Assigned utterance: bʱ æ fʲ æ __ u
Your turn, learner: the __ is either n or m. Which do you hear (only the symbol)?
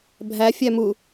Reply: m